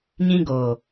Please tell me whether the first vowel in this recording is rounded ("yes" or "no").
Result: no